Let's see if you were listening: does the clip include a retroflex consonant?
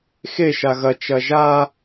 no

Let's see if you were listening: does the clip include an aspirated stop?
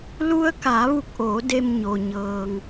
no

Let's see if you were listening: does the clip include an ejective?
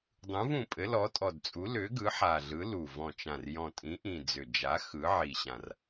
yes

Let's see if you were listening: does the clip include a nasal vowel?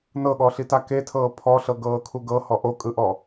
no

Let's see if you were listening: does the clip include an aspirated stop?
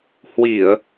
no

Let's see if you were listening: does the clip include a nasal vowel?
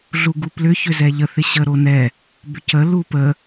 no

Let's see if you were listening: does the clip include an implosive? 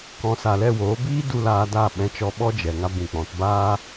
yes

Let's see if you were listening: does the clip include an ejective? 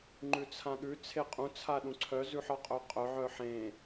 yes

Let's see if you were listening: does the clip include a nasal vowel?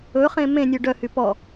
yes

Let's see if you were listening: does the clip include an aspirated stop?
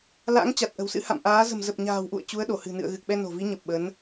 no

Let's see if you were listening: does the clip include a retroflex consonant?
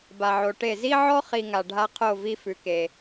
yes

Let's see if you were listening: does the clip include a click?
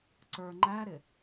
yes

